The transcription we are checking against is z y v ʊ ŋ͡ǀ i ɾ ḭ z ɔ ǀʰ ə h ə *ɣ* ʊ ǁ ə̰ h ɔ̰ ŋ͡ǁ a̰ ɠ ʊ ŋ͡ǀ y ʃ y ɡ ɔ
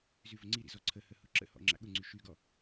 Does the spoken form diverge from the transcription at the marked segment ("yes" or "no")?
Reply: yes